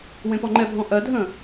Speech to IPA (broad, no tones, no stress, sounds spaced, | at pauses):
w ẽ p ɔ ŋ͡ǃ ɛ bʱ ɔ̃ ʔ ɜ dʱ ə̃